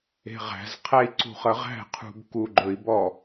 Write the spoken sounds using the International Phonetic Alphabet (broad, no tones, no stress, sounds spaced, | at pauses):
e̤ ʁ æ̤ z qʰ æ i̯ ǀ ṳ χ ə ʁ æ̤ qʰ ṳ b k u ɡ͡ǃ ɵ i̯ b ɔ